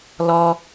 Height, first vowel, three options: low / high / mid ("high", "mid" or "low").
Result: mid